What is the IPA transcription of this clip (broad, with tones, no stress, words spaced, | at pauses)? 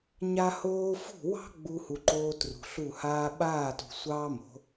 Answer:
ɲa˧hoː˧fṳ˦˨wɑ̤˦ ɡ͡bu˦hu˧ǃoː˦ trṳ˨ɬu˦˨haː˦ ɓaː˦˨tṳ˨ sʷɑː˦mo̤˨˦